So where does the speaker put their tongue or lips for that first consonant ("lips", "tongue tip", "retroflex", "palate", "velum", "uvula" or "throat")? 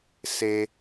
tongue tip